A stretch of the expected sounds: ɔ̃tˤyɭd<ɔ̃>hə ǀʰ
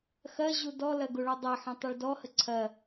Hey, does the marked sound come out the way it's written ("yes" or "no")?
no